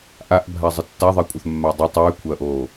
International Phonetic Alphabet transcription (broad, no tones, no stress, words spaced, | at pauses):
ʔaʔbʱazˤɨ tːaðˤekʷʼɐθmːa dˤɐ tˤʉːkʷʰɐːʔoː